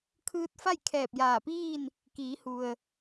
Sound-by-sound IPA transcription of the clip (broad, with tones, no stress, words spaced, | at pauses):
kʰɯː˧t̚fa˥˨j kʰɛː˧˩p̚jaː˧˩piː˥˨n | kiː˩˧hu˩ə̯